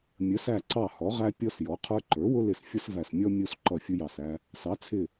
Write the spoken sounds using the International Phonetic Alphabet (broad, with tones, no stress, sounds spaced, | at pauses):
mʲ ə˩˥ s æ˧˩ ǀ ɑ˧˩ h ɔ˩˥ ʁ æ˦ pʲ ɔ˦ s j ɔ˩˥ qʰ ə˞˦ ǃ ə˞˩˥ w ʊ˦ l ɪ˧˩ s fʲ ʌ˦ s v æ˧˩ s mʲ ɔ˦ mʲ u˦ s ǃ ʌ˧˩ fʲ ʊ˦ j ɑ˧˩ s æ˦ | s ɑ˩˥ t͡sʰ ɪ˧˩